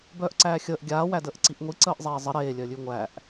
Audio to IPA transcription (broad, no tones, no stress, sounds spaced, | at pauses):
b œː ʔ ǀ æː xʲ əː ʔ ɡʲ aː w æ d əː ʔ ǀ i ʔ ŋʷ i ǀ əː ʔ zˤ eː zˤ ə ɾ eː lʲ œ lʲ ʉ ŋʷ æ ʔ